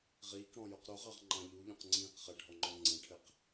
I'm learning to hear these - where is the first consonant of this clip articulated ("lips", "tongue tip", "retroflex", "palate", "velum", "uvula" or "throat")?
uvula